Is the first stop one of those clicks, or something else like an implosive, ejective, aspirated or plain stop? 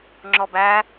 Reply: click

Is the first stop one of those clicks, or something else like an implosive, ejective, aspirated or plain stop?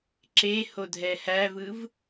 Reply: click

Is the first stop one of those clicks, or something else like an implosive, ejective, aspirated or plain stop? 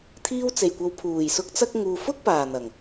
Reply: aspirated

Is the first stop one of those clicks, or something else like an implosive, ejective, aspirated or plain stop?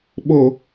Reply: implosive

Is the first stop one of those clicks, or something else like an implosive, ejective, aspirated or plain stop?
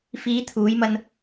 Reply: aspirated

